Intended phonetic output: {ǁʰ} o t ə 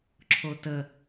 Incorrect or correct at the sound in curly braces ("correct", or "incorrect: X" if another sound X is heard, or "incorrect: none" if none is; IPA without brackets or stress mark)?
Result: correct